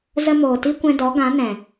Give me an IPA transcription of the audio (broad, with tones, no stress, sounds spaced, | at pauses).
z ə˧ m oː˨ t i˦ kʷ ɛ̃˧ d ɔ˨˦ ɡ ã˨˦ n ɛ̃˨